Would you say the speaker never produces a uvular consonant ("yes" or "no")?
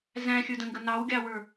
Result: yes